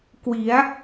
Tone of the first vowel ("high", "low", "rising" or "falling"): rising